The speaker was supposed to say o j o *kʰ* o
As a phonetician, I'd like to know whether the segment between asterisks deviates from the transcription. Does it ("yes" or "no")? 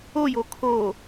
no